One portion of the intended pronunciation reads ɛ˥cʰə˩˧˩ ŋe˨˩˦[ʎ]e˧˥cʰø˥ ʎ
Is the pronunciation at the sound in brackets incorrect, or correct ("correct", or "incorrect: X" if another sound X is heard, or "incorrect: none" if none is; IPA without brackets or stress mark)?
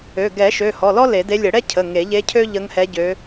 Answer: correct